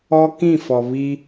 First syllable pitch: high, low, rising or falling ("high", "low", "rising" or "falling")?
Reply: high